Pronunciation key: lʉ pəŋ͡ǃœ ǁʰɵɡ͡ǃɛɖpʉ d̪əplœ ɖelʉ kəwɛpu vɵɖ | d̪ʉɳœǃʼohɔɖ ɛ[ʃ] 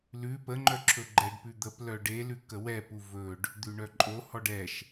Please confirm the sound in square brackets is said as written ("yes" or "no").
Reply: yes